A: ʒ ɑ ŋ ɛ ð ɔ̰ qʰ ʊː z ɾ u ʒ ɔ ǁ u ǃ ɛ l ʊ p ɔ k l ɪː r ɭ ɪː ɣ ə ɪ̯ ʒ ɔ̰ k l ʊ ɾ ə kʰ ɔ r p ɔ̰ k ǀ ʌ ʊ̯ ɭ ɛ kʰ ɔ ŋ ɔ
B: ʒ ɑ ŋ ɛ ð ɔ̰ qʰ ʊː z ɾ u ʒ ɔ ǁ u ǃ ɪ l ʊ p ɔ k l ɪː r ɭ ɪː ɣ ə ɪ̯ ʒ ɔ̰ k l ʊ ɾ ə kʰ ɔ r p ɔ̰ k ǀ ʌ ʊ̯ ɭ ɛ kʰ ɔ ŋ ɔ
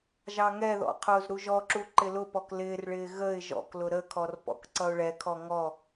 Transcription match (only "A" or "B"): B